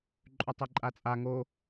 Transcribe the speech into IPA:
ǃʼʉtˤeǃʼat͡sʼa ŋo

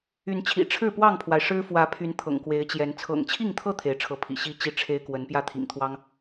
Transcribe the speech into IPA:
y˨˦nt͡ɕʰḭ˨˩ ʈ͡ʂʰɻ̩˥˨pwɑ˥˨ŋpʰwa˩ɪ̯ ʂɻ̩˦ fwä˨˦pʰy˨˦n t̪ʰɤ̰˨˩ŋkwe˨˦ɪ̯t͡ɕjɛ˨˦n t͡sʰɤ̰˨˩ŋt͡ɕʰi˥˨ŋt̪ʰɤ˥˨ t̪ʰe˨˦ɪ̯ʈ͡ʂʰɤ˨˦pʰḭ˨˩ ɕi˥˨ t͡ɕi˦ʈ͡ʂʰe˦ɪ̯ kwə˨˦npjä˥˨t̪ʰḭ˨˩ŋt̪ʰwɑ˦ŋ

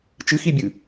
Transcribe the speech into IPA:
t͡ʃɨxibʲɨ

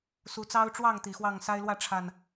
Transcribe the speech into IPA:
su˨˦t͡sɑ˦ʊ̯ʈ͡ʂwɑ˥˨ŋ t̪i˨˩xwɑ˥˨ŋsa˦ɪ̯lwä˥˨ ʈ͡ʂʰa˨˩n

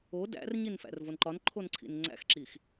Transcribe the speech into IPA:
o dæ̰rɲinfæ̰r vonǃɒnǃʰonǀʰḭn ŋ͡ǀæ̰xǁix

